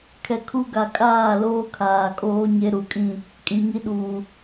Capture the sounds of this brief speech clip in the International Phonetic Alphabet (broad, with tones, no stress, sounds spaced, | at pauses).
kʰ ɛ˨ kʰ u˦ ɡ a˨ kʼ aː˦˨ l oː˦ kʰ aː˨ kʼ oː˦ ɲ e˦ ɾ u˨ kʼ ĩ˦˨ | kʼ ĩ˨ ŋ i˦ ɗ uː˨